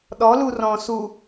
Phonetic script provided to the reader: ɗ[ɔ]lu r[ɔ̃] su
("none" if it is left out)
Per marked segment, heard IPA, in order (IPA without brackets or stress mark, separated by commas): ɔ, ɔ̃